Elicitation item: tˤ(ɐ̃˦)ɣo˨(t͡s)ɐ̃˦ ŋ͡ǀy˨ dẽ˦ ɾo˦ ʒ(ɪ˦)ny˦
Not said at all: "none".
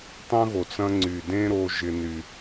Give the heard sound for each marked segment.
ɐ̃˦, t͡s, ɪ˦

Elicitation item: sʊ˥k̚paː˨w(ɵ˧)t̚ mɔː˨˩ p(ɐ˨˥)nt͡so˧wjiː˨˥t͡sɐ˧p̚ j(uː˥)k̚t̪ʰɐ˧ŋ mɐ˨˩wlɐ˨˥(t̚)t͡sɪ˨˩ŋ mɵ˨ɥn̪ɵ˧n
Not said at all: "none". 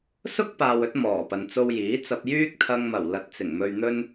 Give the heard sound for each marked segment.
ɵ˧, ɐ˨, yː˥, t̚

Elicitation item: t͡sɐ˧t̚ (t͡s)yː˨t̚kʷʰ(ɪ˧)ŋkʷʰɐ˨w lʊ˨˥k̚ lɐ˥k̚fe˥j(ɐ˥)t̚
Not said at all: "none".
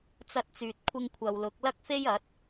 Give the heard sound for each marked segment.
t͡s, ɪ˧, ɐ˨˥

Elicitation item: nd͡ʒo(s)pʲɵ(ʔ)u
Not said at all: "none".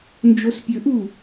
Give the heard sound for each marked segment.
s, ʔ

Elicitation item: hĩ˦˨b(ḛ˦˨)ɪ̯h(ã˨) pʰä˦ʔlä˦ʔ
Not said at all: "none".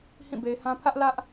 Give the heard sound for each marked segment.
e˨, ã˦

